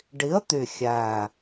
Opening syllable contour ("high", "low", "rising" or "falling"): rising